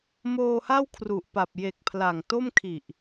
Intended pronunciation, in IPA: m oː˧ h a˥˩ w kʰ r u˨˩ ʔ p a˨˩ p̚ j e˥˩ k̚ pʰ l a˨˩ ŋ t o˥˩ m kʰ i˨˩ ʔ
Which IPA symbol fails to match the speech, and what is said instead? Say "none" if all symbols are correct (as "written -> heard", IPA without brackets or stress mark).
e˥˩ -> e˨˩